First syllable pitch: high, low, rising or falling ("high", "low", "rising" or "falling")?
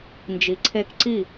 low